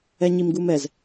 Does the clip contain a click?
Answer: no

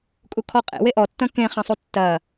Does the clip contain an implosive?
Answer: no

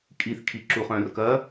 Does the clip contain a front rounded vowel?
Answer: yes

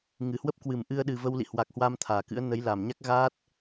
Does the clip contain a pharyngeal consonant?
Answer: no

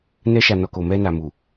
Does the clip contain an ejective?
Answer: no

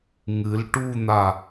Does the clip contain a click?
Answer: no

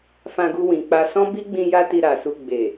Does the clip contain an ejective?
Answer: no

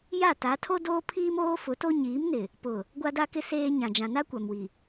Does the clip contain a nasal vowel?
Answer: yes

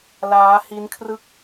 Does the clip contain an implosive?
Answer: no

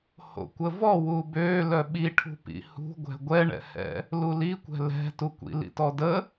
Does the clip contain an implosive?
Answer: yes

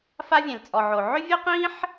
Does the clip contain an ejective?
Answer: yes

